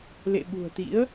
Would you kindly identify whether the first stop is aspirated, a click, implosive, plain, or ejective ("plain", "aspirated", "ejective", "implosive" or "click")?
implosive